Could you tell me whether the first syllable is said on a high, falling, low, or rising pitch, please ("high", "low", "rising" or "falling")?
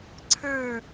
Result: falling